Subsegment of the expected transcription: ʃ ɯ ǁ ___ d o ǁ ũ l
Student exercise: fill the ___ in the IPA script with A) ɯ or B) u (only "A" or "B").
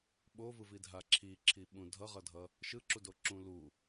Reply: B